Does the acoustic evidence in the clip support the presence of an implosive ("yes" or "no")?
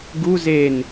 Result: no